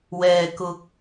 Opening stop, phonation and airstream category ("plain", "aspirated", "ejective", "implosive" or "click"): plain